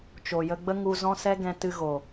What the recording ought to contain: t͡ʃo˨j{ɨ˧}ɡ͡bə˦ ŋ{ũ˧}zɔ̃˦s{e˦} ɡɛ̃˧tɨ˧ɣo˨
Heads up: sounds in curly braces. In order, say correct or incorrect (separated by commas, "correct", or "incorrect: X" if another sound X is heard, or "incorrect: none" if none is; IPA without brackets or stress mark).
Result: incorrect: ə˧, incorrect: u˧, incorrect: ɛ˦